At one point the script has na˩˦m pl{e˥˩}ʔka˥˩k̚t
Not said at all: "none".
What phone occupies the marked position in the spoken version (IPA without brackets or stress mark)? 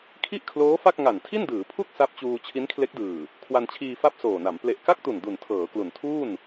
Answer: e˨˩